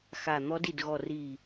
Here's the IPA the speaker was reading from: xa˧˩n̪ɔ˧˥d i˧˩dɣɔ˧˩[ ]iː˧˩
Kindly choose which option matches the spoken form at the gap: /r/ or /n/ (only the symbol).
r